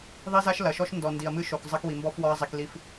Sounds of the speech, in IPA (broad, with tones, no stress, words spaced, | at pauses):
ðˤi˦za˦ʃ lɐ˨ʃɔ˦ʃ ndɔ˨ndi˨ɐ̯mɨ˦ʃo˨k zˤɐ˦kwi˨mbɔ˦f wɔ˦ɐ̯zˤi˨kli˦f